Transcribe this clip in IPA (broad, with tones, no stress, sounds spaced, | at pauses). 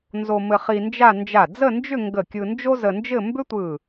n z o˧ m ɘ˧ χ i˧ n d͡ʒ a˥˧ n d͡ʒ a˧˩ d͡z ə˥˧ n d͡ʒ ʏ˥˧ ŋ ɡ ə˧˩ kʲ ɯ˧ n d͡ʒ o˥ z ə˧ n d͡ʒ ɘ˥˧ m b ʏ˥ tʷ ɯ˧˩